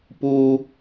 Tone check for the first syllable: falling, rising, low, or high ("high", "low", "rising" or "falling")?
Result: high